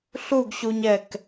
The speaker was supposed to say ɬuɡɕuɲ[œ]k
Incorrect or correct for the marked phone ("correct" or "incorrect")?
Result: incorrect